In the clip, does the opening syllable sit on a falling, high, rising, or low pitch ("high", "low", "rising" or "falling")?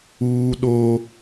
high